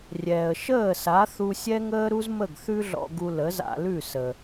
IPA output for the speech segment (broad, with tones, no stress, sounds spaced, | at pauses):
rʲ ɛː˩ ə̯ ʃ əː˥˩ s a˩˥ θ u˧ sʲ ɛ˥ ŋ əː˥ ɾ u˥ z m ə˥˩ ɡ θ ʉ˥ ɮ ɔ̰˧ ɡ u˧ l ə˩˥ z a̰˧ l ʉ˥˩ s ə˩